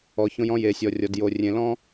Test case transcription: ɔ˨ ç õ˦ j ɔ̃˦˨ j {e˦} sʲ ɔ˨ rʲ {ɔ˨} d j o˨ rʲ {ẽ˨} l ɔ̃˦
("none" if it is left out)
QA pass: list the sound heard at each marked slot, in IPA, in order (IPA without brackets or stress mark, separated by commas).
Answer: e˨, ɔ˨, ẽ˨